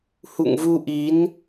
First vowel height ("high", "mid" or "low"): high